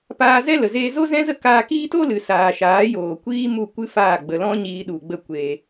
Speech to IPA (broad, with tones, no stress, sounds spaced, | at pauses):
p aː˧ z ɛ˦ l ə˨ z eː˧ z o˦ z ɛ̃˦ z ə˦ k aː˧ k iː˦ t o˦ l ɨ˨ s aː˨ ʃ aː˨˦ j oː˨ kʷ iː˦ m u˦˨ kʷ ɨ˦ f aː˦˨ ɡ͡b ə˨ l ɔ̃˦ ɲ iː˧ ɗ u˨ ɡ͡b ə˦˨ kʷ eː˧